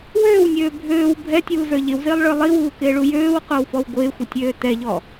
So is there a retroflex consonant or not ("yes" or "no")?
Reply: yes